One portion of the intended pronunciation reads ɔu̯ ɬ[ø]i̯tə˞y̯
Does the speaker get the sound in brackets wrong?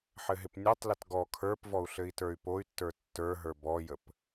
yes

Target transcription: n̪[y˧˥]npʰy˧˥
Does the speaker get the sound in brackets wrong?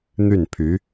yes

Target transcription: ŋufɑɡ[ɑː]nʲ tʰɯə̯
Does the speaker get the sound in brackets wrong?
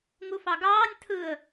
no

